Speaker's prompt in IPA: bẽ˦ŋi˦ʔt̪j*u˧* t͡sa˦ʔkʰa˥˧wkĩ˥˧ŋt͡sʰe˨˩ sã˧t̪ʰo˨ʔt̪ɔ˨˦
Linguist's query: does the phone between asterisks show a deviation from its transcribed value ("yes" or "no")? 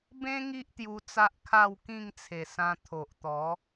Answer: no